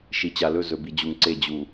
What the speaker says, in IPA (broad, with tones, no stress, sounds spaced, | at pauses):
ʃ i˨ t͡ɕ a˨ l ɵ˦˨ z ɵ˨ b i˨ d͡ʑ u˨ ŋ ǀ e˦˨ d͡ʑ u˨